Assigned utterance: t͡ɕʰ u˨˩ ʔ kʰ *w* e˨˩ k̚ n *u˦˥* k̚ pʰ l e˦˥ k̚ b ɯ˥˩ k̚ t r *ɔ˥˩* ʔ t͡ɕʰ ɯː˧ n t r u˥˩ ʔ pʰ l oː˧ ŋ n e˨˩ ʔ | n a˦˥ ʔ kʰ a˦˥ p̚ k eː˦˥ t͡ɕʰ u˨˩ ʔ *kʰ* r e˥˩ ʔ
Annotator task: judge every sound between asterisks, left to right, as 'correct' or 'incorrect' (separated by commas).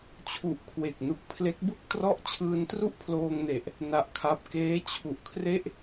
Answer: correct, incorrect, correct, correct